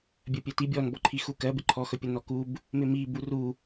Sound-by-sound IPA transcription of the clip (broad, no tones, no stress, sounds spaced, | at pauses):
bʲ ɜ pʲ ɛ t i bʲ ɔ n b ɔ ǃʰ i x u k ɜ b ɪ ǃʰ ɔ x ɵ pʲ ə n ɔ k u b | m ɪ m i b u r u